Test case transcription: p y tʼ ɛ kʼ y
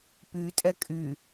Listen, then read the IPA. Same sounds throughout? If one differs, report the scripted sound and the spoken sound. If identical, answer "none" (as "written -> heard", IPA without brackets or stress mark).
none